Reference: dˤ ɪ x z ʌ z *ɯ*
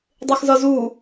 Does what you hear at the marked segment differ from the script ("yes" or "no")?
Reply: yes